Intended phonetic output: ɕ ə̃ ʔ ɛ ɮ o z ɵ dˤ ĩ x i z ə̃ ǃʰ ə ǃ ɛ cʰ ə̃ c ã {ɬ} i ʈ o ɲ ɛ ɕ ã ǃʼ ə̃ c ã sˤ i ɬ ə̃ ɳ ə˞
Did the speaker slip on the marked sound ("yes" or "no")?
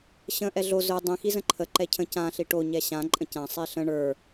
no